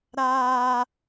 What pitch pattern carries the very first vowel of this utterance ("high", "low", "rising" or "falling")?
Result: high